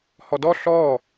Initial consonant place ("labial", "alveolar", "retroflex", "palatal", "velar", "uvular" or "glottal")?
glottal